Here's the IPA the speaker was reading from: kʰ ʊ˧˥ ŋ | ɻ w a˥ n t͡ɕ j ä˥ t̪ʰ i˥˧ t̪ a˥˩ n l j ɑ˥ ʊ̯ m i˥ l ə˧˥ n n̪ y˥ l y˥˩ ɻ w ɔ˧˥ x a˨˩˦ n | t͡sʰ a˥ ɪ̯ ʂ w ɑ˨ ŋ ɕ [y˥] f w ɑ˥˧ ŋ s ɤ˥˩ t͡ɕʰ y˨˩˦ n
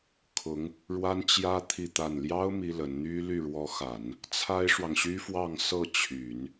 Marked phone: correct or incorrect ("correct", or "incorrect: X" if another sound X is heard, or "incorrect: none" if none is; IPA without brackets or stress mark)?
correct